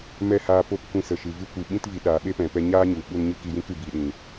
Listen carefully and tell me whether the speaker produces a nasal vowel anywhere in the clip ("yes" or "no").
yes